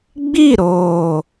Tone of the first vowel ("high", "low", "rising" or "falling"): falling